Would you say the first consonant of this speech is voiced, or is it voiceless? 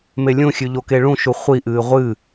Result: voiced